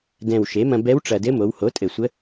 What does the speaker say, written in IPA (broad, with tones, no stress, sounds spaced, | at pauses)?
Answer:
d ɛ̃˨˩ w ʃ e˩˥ m ɐ̃˧ b ɛ˧˥ w ʈ͡ʂ ɐ˨˩ d ɘ˧˥ m o˩˧ w h o˩˥ tʼ ɘ˨˩ sʷ ə˧˥